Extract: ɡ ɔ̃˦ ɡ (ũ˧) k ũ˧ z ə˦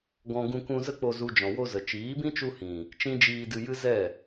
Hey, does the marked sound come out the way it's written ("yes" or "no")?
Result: yes